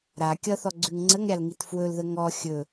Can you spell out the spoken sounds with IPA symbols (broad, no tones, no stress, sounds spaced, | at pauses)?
ɾ a kʲ ʌ θ ɔ ɡ͡ǀ ʉ ŋ ŋ͡ǀ ə ŋ ɾʲ a l ŋ i t f w ɵ l ð ə ŋ ɔ xʲ ɵ